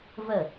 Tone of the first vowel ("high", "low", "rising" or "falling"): falling